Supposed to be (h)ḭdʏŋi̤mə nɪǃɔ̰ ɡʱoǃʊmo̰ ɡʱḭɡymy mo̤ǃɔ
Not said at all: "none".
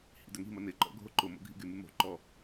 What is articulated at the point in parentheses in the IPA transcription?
h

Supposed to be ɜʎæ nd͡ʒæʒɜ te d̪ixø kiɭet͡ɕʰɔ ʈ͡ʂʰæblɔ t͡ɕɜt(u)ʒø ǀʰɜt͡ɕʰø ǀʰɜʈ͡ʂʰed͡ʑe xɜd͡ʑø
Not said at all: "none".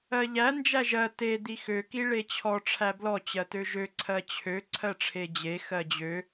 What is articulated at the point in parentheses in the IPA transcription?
ø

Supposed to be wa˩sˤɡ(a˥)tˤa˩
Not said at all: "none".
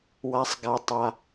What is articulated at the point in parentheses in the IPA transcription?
a˩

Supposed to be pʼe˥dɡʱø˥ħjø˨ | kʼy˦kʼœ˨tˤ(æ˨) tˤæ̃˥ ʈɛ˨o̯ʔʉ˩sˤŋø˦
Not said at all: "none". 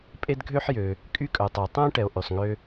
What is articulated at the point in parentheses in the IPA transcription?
æ˨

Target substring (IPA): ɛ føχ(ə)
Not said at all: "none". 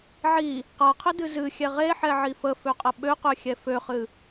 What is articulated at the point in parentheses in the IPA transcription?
ɨ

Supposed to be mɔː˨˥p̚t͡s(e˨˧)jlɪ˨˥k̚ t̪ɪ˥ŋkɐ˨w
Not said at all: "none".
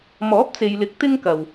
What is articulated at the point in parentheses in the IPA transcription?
e˨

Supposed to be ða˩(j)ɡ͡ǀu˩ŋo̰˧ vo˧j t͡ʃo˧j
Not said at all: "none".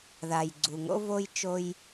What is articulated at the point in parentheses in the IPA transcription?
j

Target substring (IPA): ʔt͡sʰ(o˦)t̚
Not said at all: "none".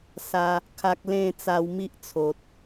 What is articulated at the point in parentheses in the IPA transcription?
o˨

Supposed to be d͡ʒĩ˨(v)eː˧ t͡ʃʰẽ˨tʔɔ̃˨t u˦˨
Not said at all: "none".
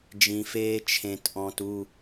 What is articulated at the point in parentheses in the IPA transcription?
f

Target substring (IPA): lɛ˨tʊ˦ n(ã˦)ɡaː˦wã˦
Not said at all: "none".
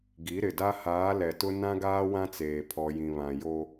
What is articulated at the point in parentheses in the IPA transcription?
ã˦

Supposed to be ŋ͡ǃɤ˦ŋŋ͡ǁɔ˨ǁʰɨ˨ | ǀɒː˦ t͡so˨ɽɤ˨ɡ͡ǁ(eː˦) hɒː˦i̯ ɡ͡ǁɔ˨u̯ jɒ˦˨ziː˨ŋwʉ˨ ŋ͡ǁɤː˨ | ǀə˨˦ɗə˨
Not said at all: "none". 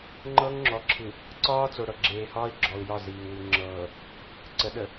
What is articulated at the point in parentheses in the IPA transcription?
eː˨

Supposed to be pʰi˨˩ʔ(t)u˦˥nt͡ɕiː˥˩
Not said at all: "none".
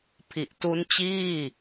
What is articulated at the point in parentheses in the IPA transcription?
t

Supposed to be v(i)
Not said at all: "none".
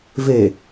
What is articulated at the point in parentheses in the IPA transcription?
e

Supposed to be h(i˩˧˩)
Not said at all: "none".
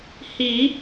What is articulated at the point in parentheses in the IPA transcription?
i˨˩˦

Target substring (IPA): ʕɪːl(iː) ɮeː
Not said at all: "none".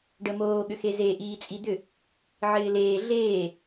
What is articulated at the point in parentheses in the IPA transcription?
eː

